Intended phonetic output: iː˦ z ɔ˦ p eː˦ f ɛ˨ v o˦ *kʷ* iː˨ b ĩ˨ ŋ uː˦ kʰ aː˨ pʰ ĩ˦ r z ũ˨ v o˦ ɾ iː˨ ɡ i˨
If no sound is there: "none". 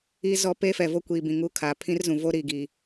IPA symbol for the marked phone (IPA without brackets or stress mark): kʷ